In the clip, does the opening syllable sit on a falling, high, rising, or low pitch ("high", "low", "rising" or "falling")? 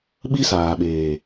high